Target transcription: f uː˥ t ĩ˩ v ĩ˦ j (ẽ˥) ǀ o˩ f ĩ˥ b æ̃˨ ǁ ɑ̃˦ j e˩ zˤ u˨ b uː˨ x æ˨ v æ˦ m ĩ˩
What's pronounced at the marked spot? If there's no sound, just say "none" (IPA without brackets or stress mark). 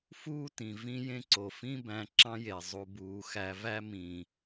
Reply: ẽ˥